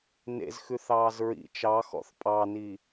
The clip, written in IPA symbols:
nḛzxʉθɑːz ɹḭ t͡ʃɑxɔ̰θ pʼɑni

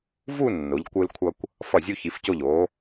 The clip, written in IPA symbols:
vu˥˧ nːo˩˧ʎ kʷɯ˧lkʷʰʌ˧kʷ | fʌ˧˩zʲu˧çi˩˧fco˧˩ʎ o˩˧

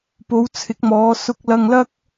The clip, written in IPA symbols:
po˨˧wt͡sʰɪ˨˥k̚mɔː˨˧ sʊ˧k̚lɐ˧ŋlɐ˥k̚

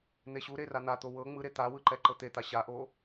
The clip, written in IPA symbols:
n̪eɕuɾe ran̪at̪o wɤ ŋ͡mɯɾe t̪awɯ ǃɛǃɤt̪et̪a ɕaʔo

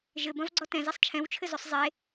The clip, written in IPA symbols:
ʒɘbɐ̃vɡ͡ǀɔ tɛ̃zisˤ t͡ʃʰɛ̃wt͡ʃʰɘzosˤ zˤe

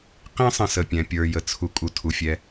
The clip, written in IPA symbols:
qĩ˦sˤə̃˨sə˩pʲɛ̃˩ pʲə˞˨jə˩t͡sʰu˨kʼu˨ tʰu˩fʲɛ˨

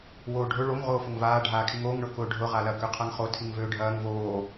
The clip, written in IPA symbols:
woːɖʱʊ ɭoŋ ʁoːfʊŋvaː ɖʱaːkʰiŋoːŋ ɳʊkʊːɖʱʊ ʁalɐ køqʰaŋχo tʰiŋvøːɖʱɐːŋ voː

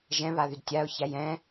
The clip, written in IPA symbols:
ʒɛ̃βaðyd tʲaʊ̯çæj ɛ̃

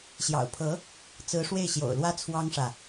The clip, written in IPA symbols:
ɕjɑ̰˨˩ʊ̯pʰɤ˧˥ | t͡sɹ̩˧˥ʂwe˥˩ɪ̯ɕjo̰˨˩ʊ̯lwä˥ t͡sʰwɑ˥ŋʂä˨

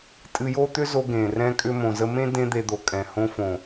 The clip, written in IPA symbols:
tʼɨ˧jo˦ t̪ʏ˦zo˧ ɡẽ˨ rɛ̃˦kʼʏ˦ mõ˨zə˧mẽ˦ dẽ˦d̪e˧d̪o˨ kʼɛ̃˨ hõ˧fõ˨

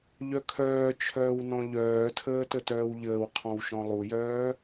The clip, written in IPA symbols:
ʎœkʰœːt͡ʃʰœːw nɔ̃ʎœːtʰəː tətœːwʎəːwqʰɔ̃w ʃɔ̃lˠujœː

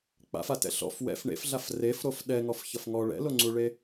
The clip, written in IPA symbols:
k͡pa̰fatɛ̰ ɬɔ̰f wɛ̰f ɳḛfɮaf refɾof ɗɛŋɔfçʌf ŋɔ ɭɛ̰loŋ͡ǀuɭe

